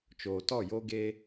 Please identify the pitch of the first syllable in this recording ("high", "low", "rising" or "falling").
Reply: low